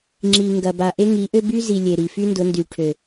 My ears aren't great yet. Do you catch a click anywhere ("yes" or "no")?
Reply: yes